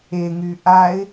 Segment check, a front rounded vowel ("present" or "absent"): present